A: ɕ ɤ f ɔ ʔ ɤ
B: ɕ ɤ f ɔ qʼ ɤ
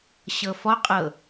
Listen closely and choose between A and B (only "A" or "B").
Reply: B